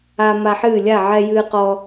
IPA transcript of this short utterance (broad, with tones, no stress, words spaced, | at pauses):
a˦ma˦ħɨː˥˨ lʲa˥˨ʕɛ˦jɨː˦qɔ˦